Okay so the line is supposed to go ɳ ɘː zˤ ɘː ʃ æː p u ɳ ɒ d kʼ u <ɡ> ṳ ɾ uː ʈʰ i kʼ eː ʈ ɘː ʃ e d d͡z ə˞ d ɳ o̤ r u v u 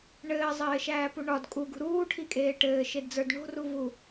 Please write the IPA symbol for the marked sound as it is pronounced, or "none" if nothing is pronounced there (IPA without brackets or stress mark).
ɡ